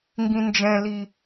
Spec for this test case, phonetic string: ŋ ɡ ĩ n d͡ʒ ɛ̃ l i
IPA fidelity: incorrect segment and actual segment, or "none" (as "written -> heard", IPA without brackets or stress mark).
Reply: none